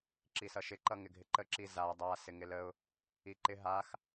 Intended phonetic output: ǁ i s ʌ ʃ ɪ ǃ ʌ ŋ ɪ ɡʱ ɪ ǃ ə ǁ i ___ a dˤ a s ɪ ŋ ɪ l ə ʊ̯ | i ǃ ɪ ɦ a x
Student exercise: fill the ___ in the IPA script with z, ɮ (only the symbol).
z